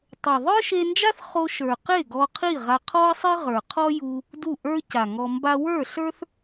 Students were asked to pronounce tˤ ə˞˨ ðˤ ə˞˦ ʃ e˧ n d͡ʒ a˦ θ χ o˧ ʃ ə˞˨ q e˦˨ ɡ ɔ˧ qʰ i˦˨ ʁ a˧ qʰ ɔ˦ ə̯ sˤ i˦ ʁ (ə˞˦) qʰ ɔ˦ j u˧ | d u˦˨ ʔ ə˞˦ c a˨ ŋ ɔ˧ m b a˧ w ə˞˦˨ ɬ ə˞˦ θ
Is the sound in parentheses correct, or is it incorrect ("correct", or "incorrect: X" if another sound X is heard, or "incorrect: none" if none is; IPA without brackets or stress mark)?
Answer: incorrect: ə˞˨